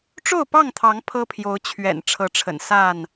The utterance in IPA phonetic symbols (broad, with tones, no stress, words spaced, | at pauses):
ʈ͡ʂo˥˨ʊ̯pɑ˥˨ŋt̪ʰɑ˨˦ŋ pʰɤ˦pʰjo˨˦ʊ̯t͡ɕʰɥɛ̰˨˩n ʈ͡ʂʰɤ˨˦ʈ͡ʂʰə̰˨˩n sa˥˨n